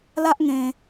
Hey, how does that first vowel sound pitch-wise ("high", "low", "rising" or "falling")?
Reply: high